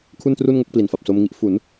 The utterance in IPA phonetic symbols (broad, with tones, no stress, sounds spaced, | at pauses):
kʰ u˥˩ n t r u˥˩ n ŋ o˥˩ k̚ p l i˨˩ n f a˨˩ p̚ s o˧ m ŋ i˦˥ ʔ f u˩˦ n